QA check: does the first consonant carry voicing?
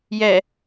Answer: yes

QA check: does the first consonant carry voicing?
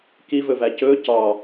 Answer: no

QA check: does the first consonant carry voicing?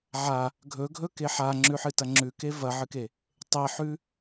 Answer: yes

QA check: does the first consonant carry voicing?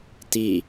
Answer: no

